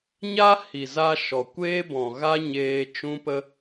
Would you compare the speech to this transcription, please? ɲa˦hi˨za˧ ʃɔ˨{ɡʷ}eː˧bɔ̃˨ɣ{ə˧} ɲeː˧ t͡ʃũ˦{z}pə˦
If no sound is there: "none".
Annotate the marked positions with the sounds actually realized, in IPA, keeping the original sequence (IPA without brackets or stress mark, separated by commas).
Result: kʷ, a˧, none